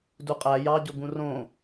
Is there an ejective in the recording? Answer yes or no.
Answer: yes